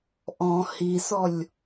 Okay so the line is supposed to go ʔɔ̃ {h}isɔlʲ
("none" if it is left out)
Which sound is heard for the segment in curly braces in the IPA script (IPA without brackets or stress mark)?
h